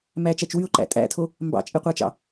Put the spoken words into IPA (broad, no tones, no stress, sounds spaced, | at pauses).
m æ t͡ʃ æ t͡ʃ w y ʊ̯ ǃ æ̰ tʼ æ̰ tʰ o | m b ɑ̰ t͡ʃʼ e qʷ ɑ t͡ʃ ɑ̰